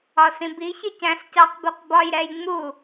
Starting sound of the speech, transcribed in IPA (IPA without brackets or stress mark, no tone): ɒ